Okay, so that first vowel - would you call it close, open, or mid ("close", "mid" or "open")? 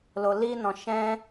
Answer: mid